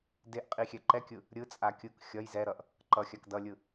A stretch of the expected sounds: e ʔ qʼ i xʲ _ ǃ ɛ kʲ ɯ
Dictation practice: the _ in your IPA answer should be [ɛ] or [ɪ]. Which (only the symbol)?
ɛ